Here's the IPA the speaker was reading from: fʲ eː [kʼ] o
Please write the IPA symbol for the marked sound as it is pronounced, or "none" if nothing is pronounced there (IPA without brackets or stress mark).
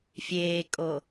kʼ